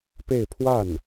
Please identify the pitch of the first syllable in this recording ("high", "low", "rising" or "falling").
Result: falling